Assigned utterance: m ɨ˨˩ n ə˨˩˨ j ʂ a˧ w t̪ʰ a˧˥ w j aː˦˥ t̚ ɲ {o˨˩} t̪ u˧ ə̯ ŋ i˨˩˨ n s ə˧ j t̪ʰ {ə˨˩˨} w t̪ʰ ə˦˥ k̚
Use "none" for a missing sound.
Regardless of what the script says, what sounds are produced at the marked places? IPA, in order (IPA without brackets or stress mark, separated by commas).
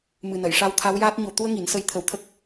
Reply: o˨˩, ə˨˩˦